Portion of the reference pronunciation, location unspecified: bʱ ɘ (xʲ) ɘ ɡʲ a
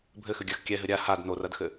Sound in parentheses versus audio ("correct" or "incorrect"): incorrect